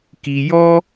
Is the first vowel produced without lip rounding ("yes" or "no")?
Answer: yes